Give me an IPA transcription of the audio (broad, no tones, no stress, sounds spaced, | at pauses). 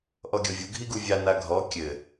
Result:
ʔ ɔ ɡʲ ɔ vʲ u ɡʱ i ɡ u vʲ a n a ɡʱ ɔ kʲ ɘ